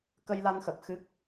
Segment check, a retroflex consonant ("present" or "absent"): absent